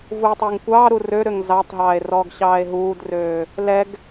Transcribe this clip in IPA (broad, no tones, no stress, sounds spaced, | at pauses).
v uː tˤ øː ŋ kʷ ɑː ɾ u r ø ɾ ø ŋ z ɑ tˤ ɦ ɑː e̯ r ɔː ɡ ɕ ɑː e̯ ɦ uː d r øː | l ɛ ɡ